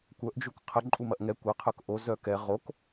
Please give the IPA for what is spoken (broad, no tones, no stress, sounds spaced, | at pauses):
kʷ œ ʔ d͡ʒ u k qʰ ə ǃʼ u m ɐ ʔ ŋ ɛ kʷ ɐ qʰ œ k ʔ o z œ k ɛ ʁ o k